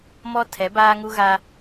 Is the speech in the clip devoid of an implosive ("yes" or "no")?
yes